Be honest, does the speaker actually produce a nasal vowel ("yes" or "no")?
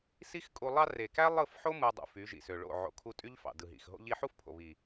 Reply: no